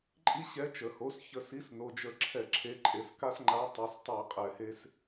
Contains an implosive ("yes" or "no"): no